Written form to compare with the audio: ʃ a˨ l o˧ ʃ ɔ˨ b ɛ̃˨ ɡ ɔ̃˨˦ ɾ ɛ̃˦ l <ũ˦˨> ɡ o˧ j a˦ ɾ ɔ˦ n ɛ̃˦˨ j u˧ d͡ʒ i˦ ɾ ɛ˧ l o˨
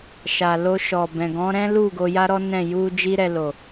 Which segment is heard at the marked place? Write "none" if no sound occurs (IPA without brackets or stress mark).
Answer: u˦˨